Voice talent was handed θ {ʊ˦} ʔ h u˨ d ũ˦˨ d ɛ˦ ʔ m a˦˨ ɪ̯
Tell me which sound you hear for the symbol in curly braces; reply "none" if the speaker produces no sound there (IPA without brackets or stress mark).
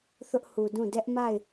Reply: ʊ˦